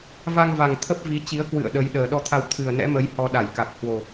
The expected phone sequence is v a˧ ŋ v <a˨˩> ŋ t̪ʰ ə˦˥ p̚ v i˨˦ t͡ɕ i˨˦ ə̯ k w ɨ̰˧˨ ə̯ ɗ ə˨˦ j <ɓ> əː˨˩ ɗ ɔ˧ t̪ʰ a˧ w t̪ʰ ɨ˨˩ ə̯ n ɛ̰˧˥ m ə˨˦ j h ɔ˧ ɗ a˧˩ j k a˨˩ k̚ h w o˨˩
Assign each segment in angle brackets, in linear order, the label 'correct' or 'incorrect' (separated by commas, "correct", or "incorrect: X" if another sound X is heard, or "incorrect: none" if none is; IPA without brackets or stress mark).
correct, incorrect: ɗ